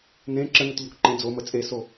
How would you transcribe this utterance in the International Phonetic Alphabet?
n ẽ ǁ ə n ə t ʎ o k ǃ ẽ d͡z o m ə t͡sʼ e s o

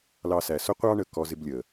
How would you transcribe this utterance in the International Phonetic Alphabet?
l ɑ˧ s æ˨ s ʊ˦ qʷ ɑ˧ ɳ ə˨ k ɔ˧ z ɪ˧ b lʲ ə˨

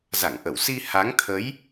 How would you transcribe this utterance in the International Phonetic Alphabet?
z a˧˩ ŋ ʔ ə˧˩ w s i˧ h a˨˦ ŋ t̪ʰ ə˨˦ j

